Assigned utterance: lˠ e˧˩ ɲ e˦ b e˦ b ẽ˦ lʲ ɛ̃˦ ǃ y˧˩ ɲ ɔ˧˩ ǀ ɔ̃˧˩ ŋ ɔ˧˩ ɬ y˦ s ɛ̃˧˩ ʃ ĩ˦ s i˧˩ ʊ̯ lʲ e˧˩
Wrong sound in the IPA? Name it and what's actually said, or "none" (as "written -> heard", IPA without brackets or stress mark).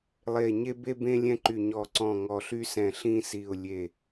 ʃ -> ɬ